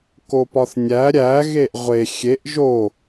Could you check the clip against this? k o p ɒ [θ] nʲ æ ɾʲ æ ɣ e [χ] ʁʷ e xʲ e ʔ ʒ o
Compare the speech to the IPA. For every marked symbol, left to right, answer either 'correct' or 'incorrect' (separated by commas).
correct, incorrect